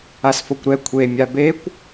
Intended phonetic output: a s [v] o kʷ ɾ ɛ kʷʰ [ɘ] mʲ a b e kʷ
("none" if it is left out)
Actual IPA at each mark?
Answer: f, e

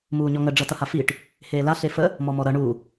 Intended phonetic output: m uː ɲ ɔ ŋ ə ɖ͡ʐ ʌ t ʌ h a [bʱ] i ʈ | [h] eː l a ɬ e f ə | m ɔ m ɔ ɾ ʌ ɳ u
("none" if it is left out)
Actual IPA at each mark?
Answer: f, h

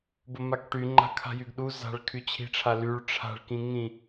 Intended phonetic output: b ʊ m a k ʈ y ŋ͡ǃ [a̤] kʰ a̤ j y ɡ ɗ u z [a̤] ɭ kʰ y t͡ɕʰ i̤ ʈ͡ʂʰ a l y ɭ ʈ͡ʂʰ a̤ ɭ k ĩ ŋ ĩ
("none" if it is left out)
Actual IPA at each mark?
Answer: a̤, a̤

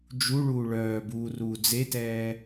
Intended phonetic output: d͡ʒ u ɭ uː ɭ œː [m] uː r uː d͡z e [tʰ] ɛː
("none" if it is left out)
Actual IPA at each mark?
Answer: b, t

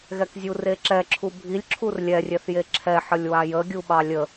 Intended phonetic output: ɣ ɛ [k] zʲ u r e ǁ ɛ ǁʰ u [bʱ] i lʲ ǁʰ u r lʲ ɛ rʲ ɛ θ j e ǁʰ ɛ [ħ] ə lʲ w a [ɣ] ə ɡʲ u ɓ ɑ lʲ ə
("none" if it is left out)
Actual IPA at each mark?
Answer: k, bʱ, ħ, j

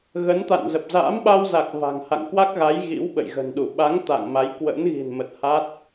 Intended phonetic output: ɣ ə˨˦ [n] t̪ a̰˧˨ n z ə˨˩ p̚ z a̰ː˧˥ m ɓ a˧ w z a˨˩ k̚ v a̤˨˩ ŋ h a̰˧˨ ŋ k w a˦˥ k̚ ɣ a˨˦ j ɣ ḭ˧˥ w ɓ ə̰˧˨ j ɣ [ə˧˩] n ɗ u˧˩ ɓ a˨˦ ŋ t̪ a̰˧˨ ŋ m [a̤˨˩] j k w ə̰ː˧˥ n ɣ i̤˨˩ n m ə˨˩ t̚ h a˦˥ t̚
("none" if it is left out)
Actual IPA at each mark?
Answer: n, ə̤˨˩, a˨˦

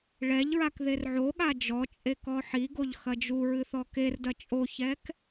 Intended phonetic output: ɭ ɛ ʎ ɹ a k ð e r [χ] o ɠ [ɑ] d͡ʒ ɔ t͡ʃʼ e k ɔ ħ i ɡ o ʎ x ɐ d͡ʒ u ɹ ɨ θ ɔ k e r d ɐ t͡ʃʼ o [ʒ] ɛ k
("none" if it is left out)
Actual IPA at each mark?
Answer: ʕ, a, ç

